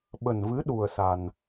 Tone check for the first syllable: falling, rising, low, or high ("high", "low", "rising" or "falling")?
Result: low